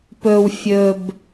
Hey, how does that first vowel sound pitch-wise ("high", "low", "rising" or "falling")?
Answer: low